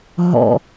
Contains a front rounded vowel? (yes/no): no